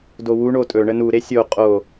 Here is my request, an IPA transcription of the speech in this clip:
d o w u ɳ o tʼ ɵ ɳ ə n u ɾ e sʲ o qʼ o

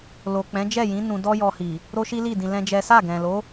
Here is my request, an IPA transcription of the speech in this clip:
l o˨ k͡p ɛ̃˨˦ d͡ʒ ɛ˦˨ j ĩ˨˦ n ũ˧ d ɔ˦ j ɔ˧ h i˨ | ɾ o˦ ʃ i˦ l i˦˨ d ĩ˧ l ɛ̃˦ d͡ʒ ɛ˦ s a˦˨ ɡ ɛ̃˨ l o˨˦

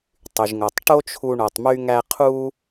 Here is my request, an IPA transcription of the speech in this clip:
tˤ y˩ ʒ ŋ o˩ tˤ ʈ o˥ t͡ʃʰ u˧ ɳ o˩ tˤ m y˧ ŋ æ˧ qʰ u˥

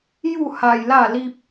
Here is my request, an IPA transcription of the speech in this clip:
j u˥˧ h a˧ j l a˥˧ l i˦ p̚

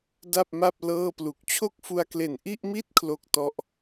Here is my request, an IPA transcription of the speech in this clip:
d a˥˩ p̚ m a˥˩ p̚ l ɤː˥˩ p l u˨˩ k̚ t͡ɕʰ o˥˩ k̚ f u˧ a̯ k l e˨˩ n ʔ i˥˩ ʔ m i˥˩ t̚ kʰ l o˥˩ k̚ t ɔ˦˥ ʔ

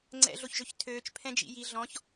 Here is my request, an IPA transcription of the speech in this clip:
ŋ͡ǀ ɛ̰ ɮ o ç ʒ ø ç tʰ øː t͡ʃ pʰ ɛ̃ d͡ʒ ḭ j i ɮ ɔ̃ ç

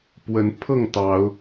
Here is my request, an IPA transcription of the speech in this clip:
p w ə˨˦ n pʰ ɤ˥˨ ŋ t̪ ɑ˨˦ ʊ̯

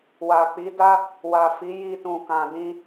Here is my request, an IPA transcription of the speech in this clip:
w a˨ k͡p i˨˦ d a˦ | w a˨ f i˨˦ j i˧ t ũ˨ k ã˨ d ĩ˧

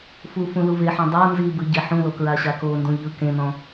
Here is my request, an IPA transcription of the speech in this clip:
f u f ũ l u v e ħ ɔ̃ dˤ ɤ n z i b ɯ ɟ e ħ ũ l o k ɹ a ɕ a k o n d ũ ʎ ɯ k ẽ n ɔ̃

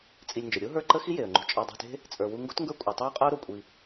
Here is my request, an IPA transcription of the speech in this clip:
t͡sʼ i˧ lʲ n d͡ʒ ə˨ ɾʲ o˦ ɦ ə˞˦˨ ǃ ə˦ x i˦ j e˨ ə̯ ŋ͡ǃ ṳ˧ t͡ʃʼ ɑ˧ dˤ o̤˧ t e̤˦ | t͡sʼ ə˞˨ w u˧ ŋ ɡ o̤˦ t ŋ ɡ ə˞˦ kʷʼ ɑ˨ tˤ ə˞˦ ʊ̯ qʼ ə˦ ʊ̯ ɾ o˨ kʷʼ i˧

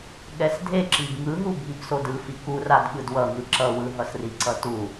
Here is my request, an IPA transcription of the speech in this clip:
ɠ ɛ s dʱ e ǁ i b ŋ ɯ ɦ u bʱ i b s o d ɯ f i k u r a d ɠ ɯ d w ʌ ŋ ɯ ǁ ʌ w ɯ ɦ ʌ s r i ǀ ʌ t u

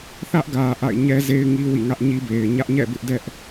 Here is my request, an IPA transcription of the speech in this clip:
θ ä˦ ʔ ɡ ä˨ ʔ a̰˦˨ ɪ̯ ɲ ɛ˦ z e˦ ɪ̯ ŋ i˦ w ḭ˦˨ ŋ ä˦ ʔ ɲ i˦ b e˨ ɪ̯ ɲ ä˦ ʔ ɲ ɛ̰˦˨ b ɪ˦ ʔ d ɛ˦ ʔ

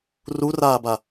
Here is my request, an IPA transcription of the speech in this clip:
r u r aː b a

